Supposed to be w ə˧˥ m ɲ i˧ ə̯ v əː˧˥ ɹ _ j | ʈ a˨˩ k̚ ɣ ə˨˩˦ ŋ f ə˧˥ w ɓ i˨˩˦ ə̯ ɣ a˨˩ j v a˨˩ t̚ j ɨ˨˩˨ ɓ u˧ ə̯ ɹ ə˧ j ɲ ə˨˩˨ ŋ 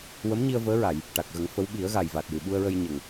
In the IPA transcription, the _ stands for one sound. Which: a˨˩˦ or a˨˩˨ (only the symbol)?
a˨˩˨